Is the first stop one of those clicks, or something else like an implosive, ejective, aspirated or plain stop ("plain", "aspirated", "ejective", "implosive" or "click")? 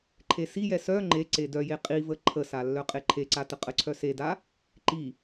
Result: click